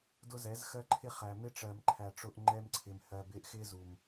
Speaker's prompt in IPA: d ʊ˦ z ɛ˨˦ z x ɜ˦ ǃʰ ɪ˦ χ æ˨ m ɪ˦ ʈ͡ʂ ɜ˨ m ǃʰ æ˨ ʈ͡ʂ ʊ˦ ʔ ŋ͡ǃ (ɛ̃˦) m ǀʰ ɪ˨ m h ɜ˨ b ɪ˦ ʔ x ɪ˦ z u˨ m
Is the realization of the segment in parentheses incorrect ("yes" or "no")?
yes